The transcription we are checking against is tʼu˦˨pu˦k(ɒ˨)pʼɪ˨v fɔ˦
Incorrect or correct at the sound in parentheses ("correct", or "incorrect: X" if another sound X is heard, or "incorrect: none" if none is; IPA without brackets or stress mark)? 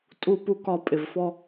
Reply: incorrect: ɒ˦˨